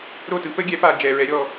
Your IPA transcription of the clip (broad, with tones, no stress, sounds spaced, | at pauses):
ɾ o˥˩ t ɯ˨˥ p ə˦˥ ɡʲ ɛ˨˥ p a˨ d͡ʒ ɛ˨ ɹ ɛ˨˥ ɾʲ ɔ˨